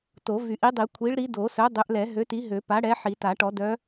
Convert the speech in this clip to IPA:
to˨˩˦vy˨˩˦ʔi˨˥dˤi˨˩˦ kʷʰi˨˥ɭɾi˨˥ do˨˩˦sœ˨˥dˤø˨˥ʔlɛ˨˩˦ ɦø˨˥ti˨˥ɦø˨˩˦ pa˨˥ɽɛ˨˥ ħi˨˩˦ta˨˩˦ʈɔ˨˩˦ dœ˨˥

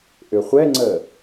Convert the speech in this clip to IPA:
ʔʏχʷɛŋ͡ǀəː

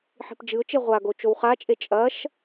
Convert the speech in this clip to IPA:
ħi̤pd͡ʒɨʊ̯t͡ʃe ʁʷaɡo t͡ʃowχat͡ʃʼe t͡ʃʼɐʃ

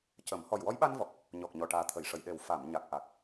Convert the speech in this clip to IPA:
cə˨˩˦m hɔ˨˩jwɔ˧˥jɓa˧nvɔ˨˩k̚ | ɲɔ˨˩k̚ɲɔ˨˩ ʈaː˨˩t̪ʰə˨˩˨jʂə˨˩˨j ɗe˨˩w fa˨˩˨m ɲa˨˩k̚ʔa˨˩k̚

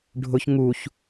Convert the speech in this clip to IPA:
ɖʱʊç ŋuç

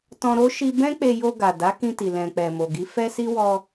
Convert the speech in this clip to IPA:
tɔ̃˧ɾo˦ ʃi˧ bɛ̃˦k͡pe˧ jo˧ɡa˨ da˨˦kĩ˧ti˨ lɛ̃˨k͡pɛ˨ mo˨ɡi˨˦fɛ˦si˦ wɔ˧

